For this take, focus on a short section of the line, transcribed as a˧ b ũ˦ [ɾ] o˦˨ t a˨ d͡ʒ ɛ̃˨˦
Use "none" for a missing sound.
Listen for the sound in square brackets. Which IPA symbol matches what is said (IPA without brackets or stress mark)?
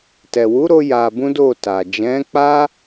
d